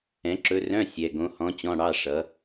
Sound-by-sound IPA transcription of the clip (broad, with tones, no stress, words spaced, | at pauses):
ɛ̃˩˥ǁɵ˧˥ rœ̃˧˥˧ sʲɛ˩˧˩ɡõ˧˥ hɔ̃˧˥t͡ɕɔ̃˧˥˧ɽɑ˧˥˧ ʂʌ˩˥